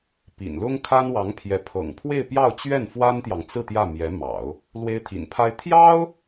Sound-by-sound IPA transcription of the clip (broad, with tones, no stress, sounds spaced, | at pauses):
p ḭ˨˩ n l ʊ˥ ŋ kʰ a˥ n w ɑ˧˥ ŋ pʰ j ɛ˧˥ pʰ ɤ̰˨˩ ŋ pʰ w e˥˧ ɪ̯ p j ɑ˥˧ ʊ̯ t͡ɕ ɥ ɛ˥˩ n f w a˥ n t̪ j ɑ˨ ŋ t͡s ɹ̩˥˧ t̪ j ä˥˩ m j ɛ˧˥ m ɑ̰˨˩˦ ʊ̯ | l w e˥ ɪ̯ t̪ʰ ḭ˨˩ n pʰ a˥ ɪ̯ t̪ʰ j ɑ˥ ʊ̯